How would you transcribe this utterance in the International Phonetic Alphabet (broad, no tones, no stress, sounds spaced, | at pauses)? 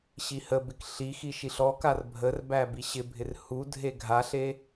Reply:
ɕ i h ə b ɪ k ɬ i x i ʃ i ɬ ɔ k a r bʱ ə r b æ b i ɕ ɪ bʱ ɪ r h u dʱ e ɡʱ a ɬ e